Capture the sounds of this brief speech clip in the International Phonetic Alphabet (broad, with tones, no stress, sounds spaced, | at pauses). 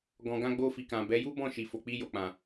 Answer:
ɡ ɔ̃˨ ɡ ã˧ ɡ͡b o˧ f i˨ k ã˨ b ɛ˨˦ j u˦ b ɔ̃˦˨ ʃ i˨ f o˨ k͡p i˧ j o˨ k͡p ã˨